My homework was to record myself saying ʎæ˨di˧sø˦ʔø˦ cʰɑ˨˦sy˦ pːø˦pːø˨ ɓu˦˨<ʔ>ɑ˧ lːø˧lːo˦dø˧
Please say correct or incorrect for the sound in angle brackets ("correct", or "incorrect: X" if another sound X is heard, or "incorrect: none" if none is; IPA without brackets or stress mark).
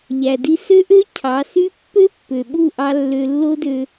correct